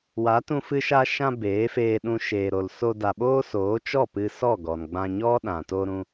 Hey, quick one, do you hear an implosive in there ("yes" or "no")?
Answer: yes